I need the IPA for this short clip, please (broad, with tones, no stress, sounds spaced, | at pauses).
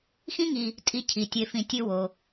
x ĩ˦ ŋ i˨ | tʼ i˨ cʰ i˩ tʲ e˨ f ĩ˨ tʲ ɨ˦ w o˩